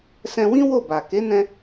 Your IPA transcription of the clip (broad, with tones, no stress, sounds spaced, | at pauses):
s ɛ̃˧ w ĩ˦ w o˦˨ b a˨ k e˨˦ n ɛ̃˧